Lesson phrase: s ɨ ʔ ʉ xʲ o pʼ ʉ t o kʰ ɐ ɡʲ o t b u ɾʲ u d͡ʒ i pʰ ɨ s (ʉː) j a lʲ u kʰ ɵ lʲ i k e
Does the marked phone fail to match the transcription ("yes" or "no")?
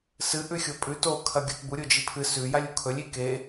yes